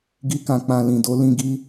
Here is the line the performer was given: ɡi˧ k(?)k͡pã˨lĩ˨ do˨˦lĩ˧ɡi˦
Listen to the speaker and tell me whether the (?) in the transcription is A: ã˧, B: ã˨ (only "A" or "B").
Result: B